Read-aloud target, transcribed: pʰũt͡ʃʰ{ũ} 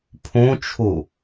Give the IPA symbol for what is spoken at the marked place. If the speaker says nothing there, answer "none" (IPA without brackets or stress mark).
u